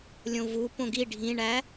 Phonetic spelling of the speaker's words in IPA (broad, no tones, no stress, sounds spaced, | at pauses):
lʲ õ v u p õ ɡ i ɖʱ ĩ ɳ æ